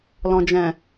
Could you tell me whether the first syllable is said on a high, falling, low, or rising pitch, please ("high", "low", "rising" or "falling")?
low